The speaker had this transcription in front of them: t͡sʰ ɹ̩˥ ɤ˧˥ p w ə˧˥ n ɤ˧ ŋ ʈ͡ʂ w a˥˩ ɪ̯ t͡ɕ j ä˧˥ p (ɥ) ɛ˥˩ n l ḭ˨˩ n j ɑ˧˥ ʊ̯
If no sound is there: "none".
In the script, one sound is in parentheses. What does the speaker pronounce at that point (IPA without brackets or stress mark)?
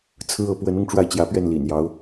ɥ